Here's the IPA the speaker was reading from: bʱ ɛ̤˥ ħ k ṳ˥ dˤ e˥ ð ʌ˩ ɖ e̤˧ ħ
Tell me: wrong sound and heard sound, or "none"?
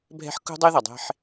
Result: ɖ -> dˤ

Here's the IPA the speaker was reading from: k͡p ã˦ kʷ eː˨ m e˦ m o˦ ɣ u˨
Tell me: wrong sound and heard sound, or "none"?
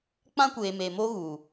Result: e˦ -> e˨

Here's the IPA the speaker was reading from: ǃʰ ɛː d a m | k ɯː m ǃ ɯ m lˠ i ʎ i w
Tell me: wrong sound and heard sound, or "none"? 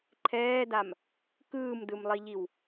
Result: ǃ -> d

